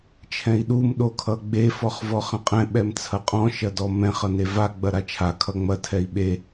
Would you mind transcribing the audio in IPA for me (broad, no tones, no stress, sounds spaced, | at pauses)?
t͡ʃʰ ɛ̃ i̯ ɗ u m ɗ o kʰ ʌ ɡ͡b e f ɔ χ v ɔ χ ɐ̃ qʼ ɛ̃ ɓ ɛ m t͡sʰ ɐ qʼ ɔ̃ ʃ ɐ d ɔ m ɛ̃ χ ʌ n e v a ɡ͡b ɐ ɾ a t͡ʃʰ a kʰ ʌ ŋ͡m ɐ tʰ ɛ i̯ ɓ e